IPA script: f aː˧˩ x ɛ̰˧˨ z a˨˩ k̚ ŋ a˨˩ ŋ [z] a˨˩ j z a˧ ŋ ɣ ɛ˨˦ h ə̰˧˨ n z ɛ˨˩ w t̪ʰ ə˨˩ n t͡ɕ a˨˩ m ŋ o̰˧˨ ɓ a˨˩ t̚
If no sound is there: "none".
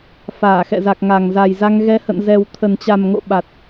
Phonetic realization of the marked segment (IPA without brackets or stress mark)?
z